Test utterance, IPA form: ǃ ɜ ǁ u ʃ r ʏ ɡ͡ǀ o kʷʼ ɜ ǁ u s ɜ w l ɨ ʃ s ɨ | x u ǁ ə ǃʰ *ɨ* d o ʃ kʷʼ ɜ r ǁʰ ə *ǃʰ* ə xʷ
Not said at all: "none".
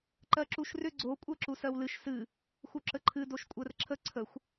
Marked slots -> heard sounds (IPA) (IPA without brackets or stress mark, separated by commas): ɨ, ǀʰ